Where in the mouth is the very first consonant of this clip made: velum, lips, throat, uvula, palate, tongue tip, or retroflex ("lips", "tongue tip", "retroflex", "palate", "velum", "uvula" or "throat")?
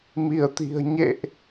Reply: lips